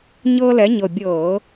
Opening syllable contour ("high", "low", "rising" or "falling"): high